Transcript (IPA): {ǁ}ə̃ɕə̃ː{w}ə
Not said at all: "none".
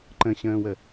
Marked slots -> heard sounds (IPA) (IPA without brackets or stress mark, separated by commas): ǃ, w